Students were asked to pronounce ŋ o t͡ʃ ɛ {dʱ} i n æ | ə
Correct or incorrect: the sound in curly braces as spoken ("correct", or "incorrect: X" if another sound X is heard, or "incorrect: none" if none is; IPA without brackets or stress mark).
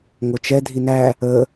correct